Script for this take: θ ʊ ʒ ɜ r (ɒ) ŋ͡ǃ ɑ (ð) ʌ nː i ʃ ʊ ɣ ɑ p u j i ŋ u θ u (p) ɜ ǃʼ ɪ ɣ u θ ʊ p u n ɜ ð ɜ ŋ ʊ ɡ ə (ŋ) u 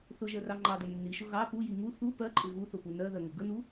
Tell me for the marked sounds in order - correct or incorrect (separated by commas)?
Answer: incorrect, incorrect, correct, incorrect